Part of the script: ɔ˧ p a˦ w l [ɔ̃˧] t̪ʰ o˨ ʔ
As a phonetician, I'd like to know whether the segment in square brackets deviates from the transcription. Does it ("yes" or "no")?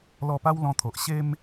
no